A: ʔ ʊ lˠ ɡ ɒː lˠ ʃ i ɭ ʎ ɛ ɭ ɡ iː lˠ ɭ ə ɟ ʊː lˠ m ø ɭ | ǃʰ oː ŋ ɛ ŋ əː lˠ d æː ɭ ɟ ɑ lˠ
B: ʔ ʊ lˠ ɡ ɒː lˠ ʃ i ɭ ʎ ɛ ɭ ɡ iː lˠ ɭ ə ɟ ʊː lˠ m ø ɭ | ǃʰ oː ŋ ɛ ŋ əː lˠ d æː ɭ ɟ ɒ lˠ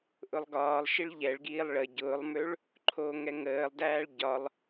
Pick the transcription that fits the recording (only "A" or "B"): B